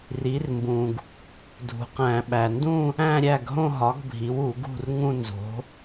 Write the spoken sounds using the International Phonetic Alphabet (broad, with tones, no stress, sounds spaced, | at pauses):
r i˩˥ r m b ũ˩ ɡ | dʱ ṳ˩ q æ̃˧˩˧ ɓ æ˩ n d ũ˥˧ | æ̃˥˧ ɾʲ æ˥˩ ɡ ɦ õ˥˧ ɦ ɒ˩˥ ɡ bʱ i˩˥ w u˧˩˧ ɡ ṳ˥˩ r ŋ ũ˥˧ n z o̤˩˥